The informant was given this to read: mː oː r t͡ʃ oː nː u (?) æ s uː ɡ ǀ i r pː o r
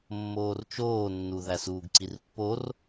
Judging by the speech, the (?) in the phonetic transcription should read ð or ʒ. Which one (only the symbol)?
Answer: ð